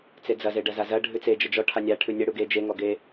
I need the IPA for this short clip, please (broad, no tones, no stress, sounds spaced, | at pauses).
t͡s e d͡z ɐ z e ɖ ɐ z a z ɐ ɖʱ ʉ t͡s e d͡ʒ ə d͡ʒ ɔ ʈʰ a nʲ a ʈʰ ʉ nʲ ɐ ɽ u ɡ e d͡ʒ e ŋ ɔ ɡ e